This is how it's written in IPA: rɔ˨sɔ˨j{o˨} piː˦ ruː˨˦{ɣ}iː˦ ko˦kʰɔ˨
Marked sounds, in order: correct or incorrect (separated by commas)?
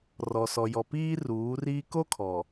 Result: incorrect, incorrect